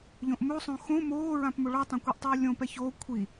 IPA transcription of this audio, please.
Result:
ʎ õ ʔ m o sˤ õ x õ m oː ɹ ã p m o ɭ ɔ tˤ ã kʷ e ʔ tˤ uː lʲ õ p ɛ ç oː kʷʰ i

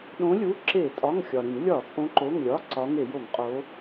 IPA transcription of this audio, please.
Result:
ɗ õ˨˦ lʲ u˩˧˩ ǁ e˧˩˧ tʼ ɒ˩˧˩ ŋ xʲ ɒ˩ ɾ ĩ˧˩˧ ŋ lʲ ɒ˧˩˧ t͡sʼ õ˨˦ ǃ o˩˧˩ ŋ lʲ ɒ˩˧˩ ǀ ɒ˨˦ ŋ e˧˩˧ j o˧˩˧ ŋ qʼ o˨˦

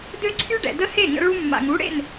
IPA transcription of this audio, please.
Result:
d ø˦ ǀʰ y˦ ɖ ɛ̰˨ d ə˦ h e˦˨ ŋ ə̰˧ ɭ u˧ mː a̰˨ ŋ u˨˦ ɽ ḛ˦˨ n

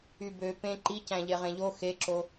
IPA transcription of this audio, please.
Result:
y b ø p ẽ ǃ i c æ̃ ʎ e ʁ ẽ ʎ o x e ǁ o

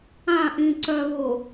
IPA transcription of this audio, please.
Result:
ã ʔ ĩ ǀ œ β ʊ

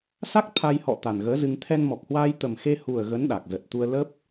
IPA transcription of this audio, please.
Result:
s a˦˥ k̚ t̪ʰ a˧ j h ɔ̰˧˨ t̪ a˨˩ n ɣ əː˨˦ z ɨ˧ ŋ t̪ʰ ɛ˧ n m ɔ˨˩ k̚ h w aː˧ j t̪ ə˨˩ m x e˧ h u˨˩ ə̯ ɣ ə˨˦ n ɗ a˨˩ k̚ z ə˨˩ t̚ t̪ u˧ ə̯ l ə˦˥ p̚

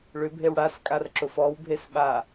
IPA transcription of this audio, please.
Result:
ɭ ʏ bʱ e w ɽ a s kʼ a r ǁ ʊ f ɔ w bʱ e s ɓ a

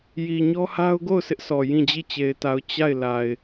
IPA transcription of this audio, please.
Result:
j i˨ ɲ ɔ˦ h a˦ ʊ̯ ɡ o˦˨ ʊ̯ s ɪ˦ ʔ sʰ ɔ˨ j ĩ˦˨ d͡ʑ i˦˨ t͡ɕ e˨ ɪ̯ t a˨ ʊ̯ t͡ɕ a˦˨ ɪ̯ l a˨ ɪ̯

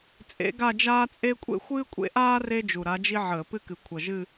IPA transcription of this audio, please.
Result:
t͡sʼ ḛ˧˥ ɡ a˥˧ d͡ʒ aː˥ t͡sʼ e˥ kʷʼ ḛ˥ xʷ ɨː˥ kʷʼ ḛ˥ ʔ aː˥ r e˥ d͡ʒ u˨˩ ɾ a˧˥ d͡ʒ i˥ ʕ əː˧˩˧ p ɨ˥ k ɨ˨˩ kʷʰ ʌ˨˩ ʒ ɨ˥˧

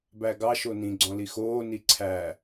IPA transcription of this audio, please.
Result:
b æ ɡ ɑ ʃ o n ĩ ɡ͡ǀ ɔ̃ l i x oː n i ǀʰ æ

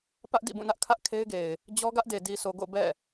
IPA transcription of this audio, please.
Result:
p ä˦ ʔ d ḭ˦˨ b ũ˦˨ n ä˦ ʔ kʰ ä˦ ʔ kʰ e˦ ɪ̯ ɡ e˨ ɪ̯ | d͡ʑ ɔ˦ ɡ ä˦ ʔ d e˨ d i˨ s o˨ ɡ o̰˦˨ b ɛ̰˦˨

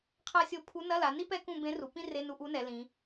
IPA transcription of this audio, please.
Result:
qʰ a˥ sʲ o˥˧ pʰ u˧˥ n ɐ˧˥˧ l a˩˧ n i˥ p ɛ˥ k ũ˥˧ b ẽ˧˥ r u˩˧ p ĩ˥ r e˧˥˧ n u˧˥˧ ʔ u˧˥ n ɛ˩˧ l ĩ˩˧

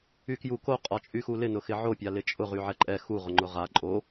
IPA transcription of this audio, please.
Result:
y k j u k o qʼ ɒ t͡ʃʼ y x u l ɪ n ʊ x ɪ ʕ o pʲ a l ɪ t͡ʃʼ ʊ ʁ y ʕ ɛ ǃʼ ɛ x u ʁ ʊ ŋ͡ǃ ʊ ʁ a ǃʼ o

